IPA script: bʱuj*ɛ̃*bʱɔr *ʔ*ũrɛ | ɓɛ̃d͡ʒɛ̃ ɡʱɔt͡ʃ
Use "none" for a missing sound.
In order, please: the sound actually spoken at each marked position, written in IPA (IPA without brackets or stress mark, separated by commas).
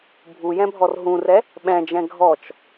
ɛ̃, ɦ